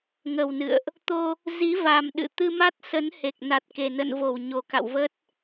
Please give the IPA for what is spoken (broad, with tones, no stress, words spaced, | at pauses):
ŋə˨˩wnɨ̰˧˨ə̯ʔ | t̪o˧ | zi˨˦va˨˩m ɗɨ̰˧˨t̪ɨ˧ma˦˥t̚ sə˨˦nhe˨˩k̚na˨˩t̚ ke˨˩nə̰˧˨nvo˧˩w ɲo˨˩ka̰˧˨wvə˦˥t̚